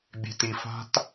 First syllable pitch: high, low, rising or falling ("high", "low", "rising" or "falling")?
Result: low